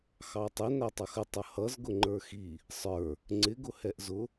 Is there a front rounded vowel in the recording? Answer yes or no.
no